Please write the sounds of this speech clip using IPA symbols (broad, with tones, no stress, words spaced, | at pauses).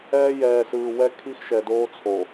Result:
ɛː˦jɛː˨sɯː˨ wɛ˦kʰi˦x ʃɛ˨doː˦t͡sʰo˨